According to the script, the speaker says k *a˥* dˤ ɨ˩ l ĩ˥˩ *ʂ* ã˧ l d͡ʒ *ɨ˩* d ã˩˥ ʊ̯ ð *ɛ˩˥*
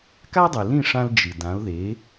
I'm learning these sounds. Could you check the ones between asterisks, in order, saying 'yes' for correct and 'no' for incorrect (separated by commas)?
yes, yes, yes, no